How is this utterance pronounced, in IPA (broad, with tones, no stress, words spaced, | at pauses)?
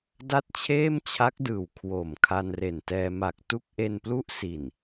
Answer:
da˥˩t̚t͡ɕʰeː˥˩mt͡ɕʰa˦˥k̚dɯː˨˩w kʰwo˨˩m kʰa˧nre˨˩ntɛː˧ ma˨˩k̚ tu˥˩k̚ʔe˧nplu˥˩ʔ si˨˩n